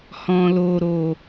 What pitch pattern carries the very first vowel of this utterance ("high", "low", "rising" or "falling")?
low